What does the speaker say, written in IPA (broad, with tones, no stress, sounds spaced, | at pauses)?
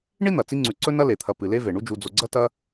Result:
ɳ i˥ n̪ ɐ˩ t͡s i˦ ŋ͡ǀ ʉ˨ ǀ ɵ˥ n ɐ˥ l e˩ t̪ʰ ɐ˨ p ɨ˩ l e˦ v e˩ ɳ u˦ d͡ʒ u˨ d͡z o˨ ɡ͡ǀ ɐ˥ t ɐ˦